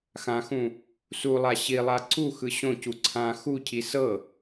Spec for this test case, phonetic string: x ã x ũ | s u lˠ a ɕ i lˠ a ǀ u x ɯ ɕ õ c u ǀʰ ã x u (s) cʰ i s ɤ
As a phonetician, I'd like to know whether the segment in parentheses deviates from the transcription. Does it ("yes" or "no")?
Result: yes